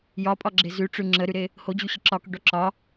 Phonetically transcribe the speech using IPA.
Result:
j ɒ pʼ ɒ ɡ͡ǁ e z y ʈ͡ʂ y ŋ͡ǁ ə ɾ y ɾ e | h o d͡ʑ y ɕ ə ǁ ɒ k y ɖ ɔ ǁ ɒ

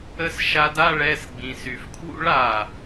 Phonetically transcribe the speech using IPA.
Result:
ə˧ s ʃ a˧ d a˦˨ ɭ ɛ˦˨ s ɡ͡b ĩ˨ s y˨ f kʰ w ṵ˦ ɭ a˦˨

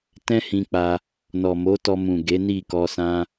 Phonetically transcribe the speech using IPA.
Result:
t ɛ̃˦ h ĩ˧ k͡p a˧ | n ɔ˨ m o˨˦ t ɔ˧ m ũ˨ ɡ e˨˦ n i˦˨ k ɔ˧ s ã˦

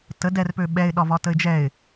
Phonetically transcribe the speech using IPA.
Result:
t ə d ɛ r p ø ɓ ɛ ɪ̯ ɗ ɒ v ɒ t ə ɪ̯ d͡ʒ ɛ ɪ̯

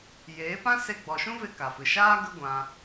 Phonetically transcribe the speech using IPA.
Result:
j eː˨˦ p ã˦ s e˧ ɡ͡b ɔ˨ ʃ ũ˦ v e˦ k a˨ f ɨ˨ ʃ aː˦ ɡ ə˦ ɡʷ ã˧

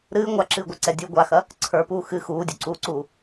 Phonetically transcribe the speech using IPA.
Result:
ɾ ɨː ŋʷ a ǁ ɨː ɡʷ ɛ ǀ ɛ dʲ u ɡʷ a x ɐ | ǀʰ ə˞ p uː x ɨ x uː dʲ u ǀ uː ǀ uː

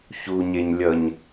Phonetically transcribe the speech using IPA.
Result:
ç u ɲ e ɲ lʲ ʌ ɲ

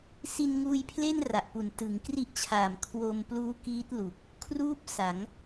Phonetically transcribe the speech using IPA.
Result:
s i˧ n ŋ uː˧ j pʰ l e˥˩ n r a˨˩ ʔ p u˨˩ n t ɯ˩˦ ŋ k r i˥˩ ʔ t͡ɕʰ aː˨˩ m kʰ w o˧ m p l uː˦˥ k iː˦˥ t̚ l u˨˩ k̚ | kʰ r uː˥˩ p̚ s a˩˦ ŋ

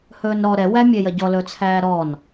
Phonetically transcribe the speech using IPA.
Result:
h ɵː n ɾ ɔ ɾ ɛ w æ mʲ e j ɐ ɟ ɔ l ɵ t͡sʰ æː ɾ ɔ n

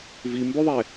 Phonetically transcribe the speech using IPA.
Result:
v i m b ø ðˤ e

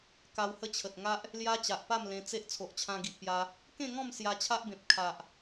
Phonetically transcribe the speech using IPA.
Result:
k a˧ w h ə˦ t͡ɕʰ ə˨ t̚ ŋ a˦ ʔ | l j a˦ t͡ɕ a˨ ʔ p a˥˧ m l ẽ˧ t͡s e˦ ʔ t͡sʰ o˨ ʔ t͡ɕʰ ã˧ ɡ i˨ ʔ p j a˧ | k ẽ˥˧ ŋ ɔ̃˥˧ m s j a˧ t͡ɕʰ a˦ ʔ b ẽ˨ p̚ kʰ a˨ ʔ

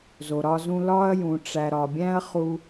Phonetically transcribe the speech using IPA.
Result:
z o˨ ɾ ɒ˧ z ũ˧ l ɒ˦ ɐ̯ j ũ˨ ʈ͡ʂ æ˨ ɾ ɒ˨ bʲ æ̃˦ ɐ̯ χ u˧

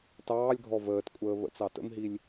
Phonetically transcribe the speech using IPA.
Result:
t ɑː lʲ ɡʱ ɔ v əː t kʷʼ əː β ə̰ t͡s ɑ t ə̰ m ɦ i lʲ

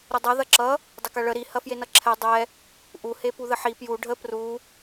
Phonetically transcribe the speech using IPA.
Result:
ɾ ʏ dˤ ʌ ð ɐ ǁ ʌ | dˤ ə k ɐ ɭ ə ɾ i h ɐ f j e n ʌ ǁʰ ɛ dˤ ɛ | ʔ u h e p u ð ə ħ i p j u ɖʱ ə p r u

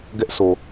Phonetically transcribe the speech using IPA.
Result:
ɡ ɛ˦ ʔ sʰ o˨

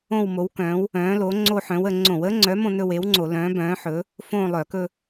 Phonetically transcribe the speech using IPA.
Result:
õ˥˧ w m o˨˥ w k œ̃ː˨˥ w | œ̃ː˨˥ l o˨˥ ŋ͡ǀ o˥˧ ħ œ̃˨˥ w ə˧˩˧ ŋ͡ǀ õ˧˩˧ w əː˨˥ ŋ͡ǀ œ˨˥ m õ˥˧ n ɵ˥˧ w e˨˥ w ŋ͡ǀ o˧˩˧ l œ̃ː˨˥ b œ̃ː˨˥ ħ ɵ˨˥ | f õː˥˧ lˠ œ˧˩˧ k ɵ˥˧

